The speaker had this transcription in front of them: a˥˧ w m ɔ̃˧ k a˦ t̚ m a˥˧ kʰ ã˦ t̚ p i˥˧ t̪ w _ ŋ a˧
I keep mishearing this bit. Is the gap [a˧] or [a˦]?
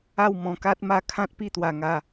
a˧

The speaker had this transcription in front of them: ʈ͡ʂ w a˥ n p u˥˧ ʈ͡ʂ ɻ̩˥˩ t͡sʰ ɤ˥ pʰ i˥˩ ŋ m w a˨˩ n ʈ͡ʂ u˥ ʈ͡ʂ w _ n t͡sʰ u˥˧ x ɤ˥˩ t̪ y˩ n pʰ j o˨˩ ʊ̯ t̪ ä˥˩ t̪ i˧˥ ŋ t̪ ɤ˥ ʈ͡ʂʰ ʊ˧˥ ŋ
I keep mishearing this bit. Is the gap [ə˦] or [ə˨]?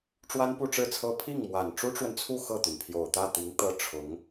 ə˨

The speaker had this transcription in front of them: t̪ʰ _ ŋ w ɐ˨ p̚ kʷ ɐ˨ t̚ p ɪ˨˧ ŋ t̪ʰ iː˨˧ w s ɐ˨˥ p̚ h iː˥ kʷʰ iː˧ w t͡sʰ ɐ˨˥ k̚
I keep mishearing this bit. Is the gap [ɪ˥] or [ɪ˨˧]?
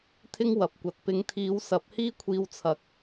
ɪ˥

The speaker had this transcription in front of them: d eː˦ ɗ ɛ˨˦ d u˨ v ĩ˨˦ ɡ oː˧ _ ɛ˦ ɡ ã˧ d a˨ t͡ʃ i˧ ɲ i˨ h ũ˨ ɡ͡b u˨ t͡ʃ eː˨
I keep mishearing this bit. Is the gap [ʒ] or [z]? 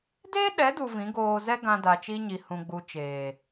z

